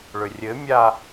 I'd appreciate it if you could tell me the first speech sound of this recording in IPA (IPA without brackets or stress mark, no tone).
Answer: ɭ